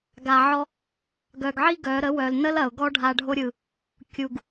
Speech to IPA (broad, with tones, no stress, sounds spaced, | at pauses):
ɡ a˨ ʕ ɔ˧ | ɡ œ˨ ɡ ʕ i˦ ɡ œ˨˦ ɾ ə˨˦ w œ˨ l n ə˦ l ɐ˨ ʊ̯ ɡ ɔ˦ ɖʱ a˧ ɖʱ o˦ ɾʲ ɯ˨ | kʲ u˨ ɡ